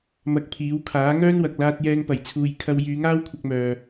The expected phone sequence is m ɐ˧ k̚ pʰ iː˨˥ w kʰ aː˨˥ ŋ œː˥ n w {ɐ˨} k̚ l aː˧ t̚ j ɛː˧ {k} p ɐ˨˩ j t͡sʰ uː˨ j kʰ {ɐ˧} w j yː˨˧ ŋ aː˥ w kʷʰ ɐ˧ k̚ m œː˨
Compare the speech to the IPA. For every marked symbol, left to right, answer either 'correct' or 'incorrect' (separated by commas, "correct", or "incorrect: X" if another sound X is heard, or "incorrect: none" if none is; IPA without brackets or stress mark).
correct, incorrect: ŋ, correct